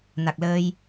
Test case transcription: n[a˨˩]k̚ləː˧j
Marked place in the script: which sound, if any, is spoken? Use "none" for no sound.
a˨˩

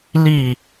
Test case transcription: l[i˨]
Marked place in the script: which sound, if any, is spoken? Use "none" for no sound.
i˨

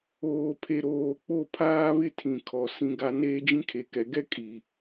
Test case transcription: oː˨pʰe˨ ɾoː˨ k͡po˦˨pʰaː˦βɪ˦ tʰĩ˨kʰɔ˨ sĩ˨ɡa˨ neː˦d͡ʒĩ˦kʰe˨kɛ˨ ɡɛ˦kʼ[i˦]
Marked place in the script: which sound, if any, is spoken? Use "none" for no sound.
i˨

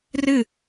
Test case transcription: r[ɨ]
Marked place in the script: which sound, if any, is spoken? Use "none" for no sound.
ɨ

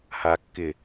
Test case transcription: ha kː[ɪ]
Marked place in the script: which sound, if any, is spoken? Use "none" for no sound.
ɪ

